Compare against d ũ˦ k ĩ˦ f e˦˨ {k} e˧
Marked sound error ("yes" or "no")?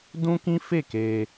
no